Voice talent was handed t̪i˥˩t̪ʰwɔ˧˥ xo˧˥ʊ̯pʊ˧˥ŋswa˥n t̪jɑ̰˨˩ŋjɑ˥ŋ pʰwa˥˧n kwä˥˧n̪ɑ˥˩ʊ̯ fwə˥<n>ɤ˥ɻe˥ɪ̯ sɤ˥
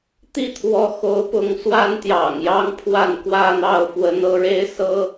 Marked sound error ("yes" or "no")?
no